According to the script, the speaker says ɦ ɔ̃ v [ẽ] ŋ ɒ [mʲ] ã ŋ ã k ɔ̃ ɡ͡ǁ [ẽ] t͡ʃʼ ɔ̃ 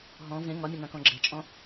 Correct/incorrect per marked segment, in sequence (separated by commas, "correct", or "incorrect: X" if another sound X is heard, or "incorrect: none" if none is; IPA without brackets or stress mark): correct, correct, incorrect: e